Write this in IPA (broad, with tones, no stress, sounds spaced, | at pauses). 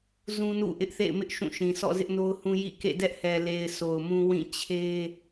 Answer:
z ũ˦ n ṵ˦˨ ʔ ɪ˦ ʔ θ ḛ˦˨ ɪ̯ m ɪ˦ ʔ ʃ ũ˦˨ ʃ ĩ˨ sʰ ɔ̰˦˨ z ɪ˦ ʔ n o˦ ʊ̯ h ũ˦ j ḭ˦˨ k ḛ˦˨ d ɛ˦ ʔ h ɛ˨ l e˨ ɪ̯ s o˨ ʊ̯ m ũ˦ w ĩ˦˨ t͡ɕʰ e˦